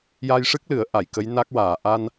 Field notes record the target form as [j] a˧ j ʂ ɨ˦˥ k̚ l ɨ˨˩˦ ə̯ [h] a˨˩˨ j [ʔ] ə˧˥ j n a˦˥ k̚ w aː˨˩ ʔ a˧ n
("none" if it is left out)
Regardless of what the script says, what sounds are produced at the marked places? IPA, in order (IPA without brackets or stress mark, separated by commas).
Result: j, ʔ, k